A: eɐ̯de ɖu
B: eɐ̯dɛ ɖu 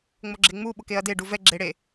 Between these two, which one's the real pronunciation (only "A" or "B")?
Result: A